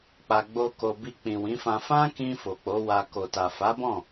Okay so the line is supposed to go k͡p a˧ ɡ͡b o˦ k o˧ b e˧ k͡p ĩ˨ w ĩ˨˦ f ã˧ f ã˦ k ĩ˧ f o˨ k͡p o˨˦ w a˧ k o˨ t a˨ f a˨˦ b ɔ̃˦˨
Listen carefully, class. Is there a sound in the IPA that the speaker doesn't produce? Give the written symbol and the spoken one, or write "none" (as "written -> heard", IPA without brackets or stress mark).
e˧ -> i˧